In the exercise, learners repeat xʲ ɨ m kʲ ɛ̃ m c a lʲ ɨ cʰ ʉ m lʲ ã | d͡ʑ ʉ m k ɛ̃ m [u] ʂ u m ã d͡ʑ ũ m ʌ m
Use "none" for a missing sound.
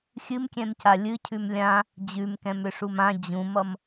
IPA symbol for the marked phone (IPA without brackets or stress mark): ʏ